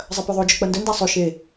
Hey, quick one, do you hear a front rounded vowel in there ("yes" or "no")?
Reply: no